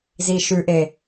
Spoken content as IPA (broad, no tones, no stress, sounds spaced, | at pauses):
z i ʃ ʉ ʔ e